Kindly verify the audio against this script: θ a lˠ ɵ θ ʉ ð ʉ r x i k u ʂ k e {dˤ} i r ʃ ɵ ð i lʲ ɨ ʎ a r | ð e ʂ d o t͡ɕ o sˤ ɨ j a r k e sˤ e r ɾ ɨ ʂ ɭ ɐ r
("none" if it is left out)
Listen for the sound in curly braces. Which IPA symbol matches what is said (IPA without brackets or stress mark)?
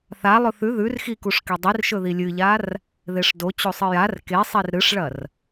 dˤ